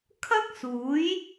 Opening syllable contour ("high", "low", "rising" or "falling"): high